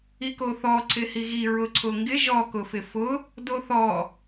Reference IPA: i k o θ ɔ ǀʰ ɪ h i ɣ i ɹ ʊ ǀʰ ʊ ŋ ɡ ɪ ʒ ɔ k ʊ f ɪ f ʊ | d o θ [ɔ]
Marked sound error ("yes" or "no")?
no